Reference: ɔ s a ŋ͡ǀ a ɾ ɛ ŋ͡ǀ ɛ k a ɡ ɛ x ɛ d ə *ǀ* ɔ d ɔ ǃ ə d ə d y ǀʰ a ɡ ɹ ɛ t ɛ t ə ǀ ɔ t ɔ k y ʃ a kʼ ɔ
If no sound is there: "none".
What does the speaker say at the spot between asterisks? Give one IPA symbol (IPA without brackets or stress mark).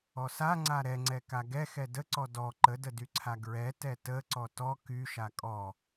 ǀ